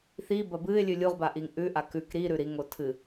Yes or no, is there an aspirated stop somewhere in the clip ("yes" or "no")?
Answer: yes